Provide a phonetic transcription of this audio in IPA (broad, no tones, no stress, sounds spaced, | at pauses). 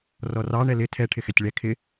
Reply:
r ɔ r ɑ ɳ ɛ l ɪ tʰ ɛ ʈʰ ɪ x ɛ tʲ ɭ ɛ kʰ ɪ